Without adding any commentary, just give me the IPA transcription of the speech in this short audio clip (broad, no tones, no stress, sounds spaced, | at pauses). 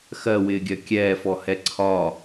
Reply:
x ɜ w ɪː ɡʲ ɜ kʲ ɛː f ɔ h ɛ ǀʰ ɒ